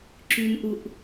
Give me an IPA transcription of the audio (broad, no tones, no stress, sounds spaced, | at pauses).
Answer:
ǁ y n ʔ u ʔ